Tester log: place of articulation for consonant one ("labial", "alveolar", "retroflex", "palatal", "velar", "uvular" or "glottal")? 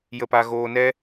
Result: palatal